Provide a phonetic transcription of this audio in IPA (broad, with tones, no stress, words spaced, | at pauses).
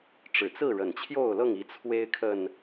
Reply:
ʈ͡ʂɻ̩˨˩t͡sɹ̩˥˨ɻə˨˩nt͡ɕʰjo˥˨ʊ̯ lɤ˥˨ŋi˨˦ t͡sʰwe˦ɪ̯ kʰə˨˩n